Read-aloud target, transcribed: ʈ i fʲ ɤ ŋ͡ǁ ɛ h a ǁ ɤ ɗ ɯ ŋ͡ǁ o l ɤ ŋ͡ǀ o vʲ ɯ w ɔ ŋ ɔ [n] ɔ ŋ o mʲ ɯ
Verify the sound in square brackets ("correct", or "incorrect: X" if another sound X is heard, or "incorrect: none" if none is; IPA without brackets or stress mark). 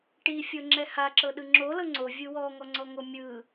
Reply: incorrect: ŋ͡ǀ